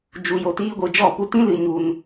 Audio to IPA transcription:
d͡ʒ u˧ j o˧ t iː˦ ɡʷ ɨ˧ d͡ʒ ɔ˦˨ p u˧ t ĩ˦ l ɨ˧ ɲ u˧ n

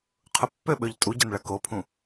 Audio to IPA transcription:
qʰ ʊ pː ø ɓ ø ʎ tʼ u ɟ ɐ n ɭ ɐ k o pʰ ũ

